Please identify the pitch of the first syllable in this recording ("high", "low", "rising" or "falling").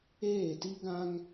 falling